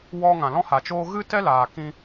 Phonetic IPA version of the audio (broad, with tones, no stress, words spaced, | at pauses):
wɔ˦ ŋã˨lɔ̃˦ha˨t͡ʃoː˦ ɣɨ˦tɛ˦laː˨ kĩ˦